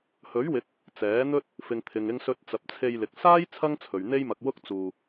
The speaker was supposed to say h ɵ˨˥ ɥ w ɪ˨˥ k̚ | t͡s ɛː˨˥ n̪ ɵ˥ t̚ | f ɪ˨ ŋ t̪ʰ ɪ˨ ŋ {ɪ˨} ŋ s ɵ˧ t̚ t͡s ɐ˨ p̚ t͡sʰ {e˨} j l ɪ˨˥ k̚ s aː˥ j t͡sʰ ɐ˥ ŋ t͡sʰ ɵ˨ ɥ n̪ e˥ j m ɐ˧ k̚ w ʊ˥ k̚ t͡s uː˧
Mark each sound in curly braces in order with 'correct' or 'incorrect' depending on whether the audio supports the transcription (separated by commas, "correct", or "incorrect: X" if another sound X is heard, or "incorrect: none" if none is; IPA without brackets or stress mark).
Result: incorrect: ɪ˧, incorrect: e˧